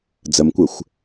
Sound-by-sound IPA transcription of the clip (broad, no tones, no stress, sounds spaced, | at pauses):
d͡z ə m kʷ ɘ xʷ